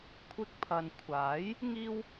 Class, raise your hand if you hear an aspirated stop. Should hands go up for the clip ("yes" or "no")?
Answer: yes